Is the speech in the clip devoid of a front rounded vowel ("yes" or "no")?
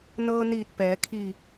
yes